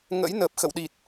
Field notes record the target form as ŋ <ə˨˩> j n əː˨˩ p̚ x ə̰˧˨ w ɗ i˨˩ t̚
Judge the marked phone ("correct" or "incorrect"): incorrect